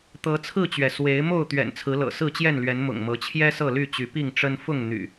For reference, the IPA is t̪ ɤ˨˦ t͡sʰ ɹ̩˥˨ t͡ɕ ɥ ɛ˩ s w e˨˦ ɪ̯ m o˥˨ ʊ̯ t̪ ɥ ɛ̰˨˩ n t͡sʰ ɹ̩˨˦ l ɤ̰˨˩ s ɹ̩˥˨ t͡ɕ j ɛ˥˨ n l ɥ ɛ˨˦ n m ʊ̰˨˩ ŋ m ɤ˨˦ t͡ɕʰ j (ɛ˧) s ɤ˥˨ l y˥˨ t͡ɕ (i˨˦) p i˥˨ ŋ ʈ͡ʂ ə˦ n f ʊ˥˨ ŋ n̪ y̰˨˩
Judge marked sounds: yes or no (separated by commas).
no, no